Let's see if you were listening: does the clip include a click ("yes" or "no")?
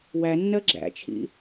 yes